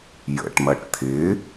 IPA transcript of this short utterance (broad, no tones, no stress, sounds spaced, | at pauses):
j ə̰ ʈ m ɐ ʈ t̪ʰ ɪ